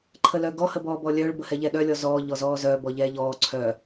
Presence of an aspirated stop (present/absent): present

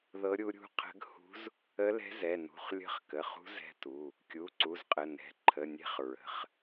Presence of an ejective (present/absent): present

